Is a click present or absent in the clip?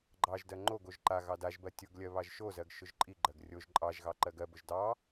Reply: present